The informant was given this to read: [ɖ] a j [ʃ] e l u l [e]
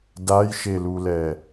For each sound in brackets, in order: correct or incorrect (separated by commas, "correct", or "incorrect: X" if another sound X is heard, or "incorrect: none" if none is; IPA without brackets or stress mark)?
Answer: incorrect: d, correct, incorrect: ɛ